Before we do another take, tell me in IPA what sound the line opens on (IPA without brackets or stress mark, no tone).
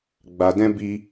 ɡ͡b